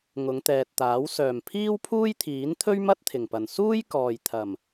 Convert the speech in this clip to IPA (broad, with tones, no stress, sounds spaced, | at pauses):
ŋ ʊ˨˧ ŋ t̪ ɛː˨ t̚ t̪ aː˨˥ w s œː˨˩ m pʰ iː˥ w pʰ uː˥ j t̪ʰ iː˨˥ n t̪ʰ ɵ˥ ɥ m ɐ˥ t̚ t̪ʰ ɪ˨˩ ŋ p ɐ˨˩ n s uː˥ j k ɔː˨ j t̪ʰ ɐ˨˩ m